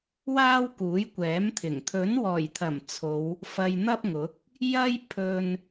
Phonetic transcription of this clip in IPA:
w aː˥ w k uː˨˥ j kʷ ɛː˨˥ m t̪ʰ ɪ˨˩ ŋ t̪ʰ ɵ˨˥ n w ɔː˨˩ j t̪ʰ ɐ˨˩ m t͡sʰ o˨˧ w | f ɐ˧ j n̪ ɐ˥ p̚ ŋ ʊ˨˥ k̚ | j ɐ˥ j pʰ ɵ˧ n

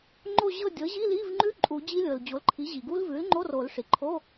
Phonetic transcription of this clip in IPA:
ŋ͡ǃ o˦˨ ʑ ɤ˦˨ dʲ ɤ˩˥ ʑ i˧˥˧ l i˧˥˧ v ŋ͡ǃ ʉ˦˥ ǃʼ u˨˩˦ d͡ʑ i˦˥ lʲ ɤ˩ l d͡ʑ o˩˥ l ǃʰ i˩˥ ʑ i˩ ɡ u˦˥ l v ʉ˩˥ l ŋ͡ǃ o˧˥˧ r o˨˩˦ l ʂ i˩ ǃʰ o˧˥˧

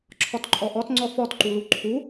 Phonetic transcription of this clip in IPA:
ǁʰ ɔ t ǃʼ ɔ ʔ ɔ t ŋ͡ǀ ɔ f ɔ t ǃ u l u ǃʰ u

